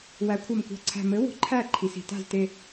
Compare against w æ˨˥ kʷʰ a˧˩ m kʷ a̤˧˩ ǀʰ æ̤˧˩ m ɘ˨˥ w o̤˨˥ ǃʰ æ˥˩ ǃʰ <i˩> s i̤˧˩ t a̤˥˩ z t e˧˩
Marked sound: correct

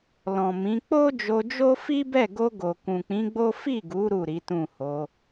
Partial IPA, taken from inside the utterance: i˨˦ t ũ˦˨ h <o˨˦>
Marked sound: correct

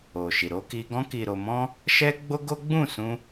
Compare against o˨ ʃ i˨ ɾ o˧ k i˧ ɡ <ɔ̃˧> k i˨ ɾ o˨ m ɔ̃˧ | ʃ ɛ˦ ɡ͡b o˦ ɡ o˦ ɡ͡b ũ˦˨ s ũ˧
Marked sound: correct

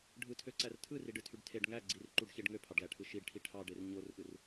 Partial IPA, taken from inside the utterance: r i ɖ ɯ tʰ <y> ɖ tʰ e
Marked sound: correct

